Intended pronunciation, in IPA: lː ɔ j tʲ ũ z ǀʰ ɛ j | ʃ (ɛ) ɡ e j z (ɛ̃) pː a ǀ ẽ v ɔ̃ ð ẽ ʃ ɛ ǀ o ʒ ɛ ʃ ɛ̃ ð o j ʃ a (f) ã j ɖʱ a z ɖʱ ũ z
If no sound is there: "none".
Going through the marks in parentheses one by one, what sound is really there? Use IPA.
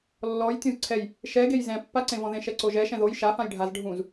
ɛ, ɛ̃, f

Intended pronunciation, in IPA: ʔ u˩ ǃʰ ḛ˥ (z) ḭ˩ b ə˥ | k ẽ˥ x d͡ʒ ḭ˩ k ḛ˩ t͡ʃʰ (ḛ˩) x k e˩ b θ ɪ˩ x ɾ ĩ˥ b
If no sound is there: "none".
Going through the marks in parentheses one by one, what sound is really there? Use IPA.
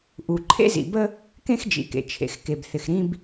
z, ḛ˩

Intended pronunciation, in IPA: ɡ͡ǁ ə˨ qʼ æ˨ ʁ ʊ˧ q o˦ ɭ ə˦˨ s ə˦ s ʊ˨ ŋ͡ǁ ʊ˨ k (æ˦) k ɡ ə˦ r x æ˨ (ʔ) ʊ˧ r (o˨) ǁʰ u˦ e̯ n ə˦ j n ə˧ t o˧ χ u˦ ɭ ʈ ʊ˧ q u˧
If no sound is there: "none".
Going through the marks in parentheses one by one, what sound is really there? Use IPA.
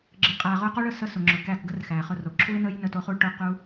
æ˦˨, χ, o˨

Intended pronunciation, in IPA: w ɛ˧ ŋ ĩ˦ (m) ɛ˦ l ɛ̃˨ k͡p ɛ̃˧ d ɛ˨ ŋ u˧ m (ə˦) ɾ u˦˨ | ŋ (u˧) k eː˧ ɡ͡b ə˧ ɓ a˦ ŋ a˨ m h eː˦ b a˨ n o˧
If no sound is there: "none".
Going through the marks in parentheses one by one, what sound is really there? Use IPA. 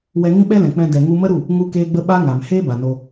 ɓ, ə˦, u˧

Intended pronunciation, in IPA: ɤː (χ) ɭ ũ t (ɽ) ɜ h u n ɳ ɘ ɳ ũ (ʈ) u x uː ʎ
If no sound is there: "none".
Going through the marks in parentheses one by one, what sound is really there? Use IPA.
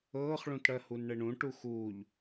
χ, ɽ, ʈ

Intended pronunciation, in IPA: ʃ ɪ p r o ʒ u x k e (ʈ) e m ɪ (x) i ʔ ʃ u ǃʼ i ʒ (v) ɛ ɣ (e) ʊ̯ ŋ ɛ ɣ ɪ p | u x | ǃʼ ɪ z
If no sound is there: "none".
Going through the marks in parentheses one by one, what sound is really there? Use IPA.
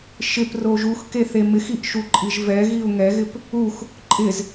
θ, x, v, i

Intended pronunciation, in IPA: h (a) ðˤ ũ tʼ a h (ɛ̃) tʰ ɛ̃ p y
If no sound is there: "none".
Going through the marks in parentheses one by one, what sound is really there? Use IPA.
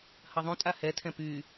ɐ, ɛ

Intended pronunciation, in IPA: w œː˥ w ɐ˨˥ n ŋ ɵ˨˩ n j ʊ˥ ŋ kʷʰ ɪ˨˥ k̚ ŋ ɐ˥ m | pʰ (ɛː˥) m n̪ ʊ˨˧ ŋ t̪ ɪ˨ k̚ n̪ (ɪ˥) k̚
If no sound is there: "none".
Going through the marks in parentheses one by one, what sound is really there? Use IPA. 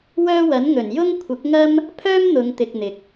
œː˥, ɪ˨

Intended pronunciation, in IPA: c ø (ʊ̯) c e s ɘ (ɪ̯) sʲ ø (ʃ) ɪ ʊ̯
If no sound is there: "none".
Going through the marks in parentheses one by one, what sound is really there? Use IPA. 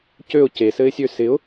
ʊ̯, ɪ̯, s

